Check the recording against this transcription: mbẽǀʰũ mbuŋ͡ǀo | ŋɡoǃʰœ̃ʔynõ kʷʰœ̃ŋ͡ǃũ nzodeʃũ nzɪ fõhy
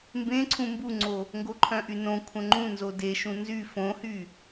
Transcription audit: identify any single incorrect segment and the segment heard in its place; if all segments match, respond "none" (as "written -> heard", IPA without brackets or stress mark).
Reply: ɪ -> y